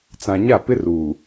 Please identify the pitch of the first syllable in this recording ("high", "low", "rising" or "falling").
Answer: low